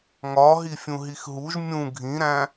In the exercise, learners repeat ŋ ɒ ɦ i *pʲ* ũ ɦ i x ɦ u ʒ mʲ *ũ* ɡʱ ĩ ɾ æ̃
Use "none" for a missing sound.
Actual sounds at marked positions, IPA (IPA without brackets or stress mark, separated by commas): fʲ, ũ